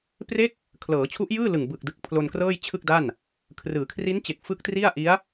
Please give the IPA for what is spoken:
pre˦˥k̚ | kʰlɤː˩˦t͡ɕʰu˦˥ʔjɯː˥˩lɯ˨˩ŋ bɯ˨˩k̚dɯ˨˩k̚ pʰlo˧nkrɤː˥˩jt͡ɕʰɯ˥˩k̚da˥˩n | kʰrɯː˩˦kʰri˦˥nt͡ɕe˨˩k̚ fɯ˦˥k̚tri˥˩a̯ʔi˦˥a̯

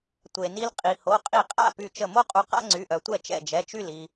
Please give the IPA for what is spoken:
tʷe˩ni˧l qʼi˩ho˩˧˩ qʼi˧˩qʼa̰˥˩py˧˩ t͡ʃə˧˩mo˥qʼu˧ qa̰˥ŋ͡ǀy˩˧˩ʔœ˩tʷɛ˥˩ t͡ʃɛ̰˧˩d͡ʒɛ˩˧˩t͡ʃy˥˩l i˩

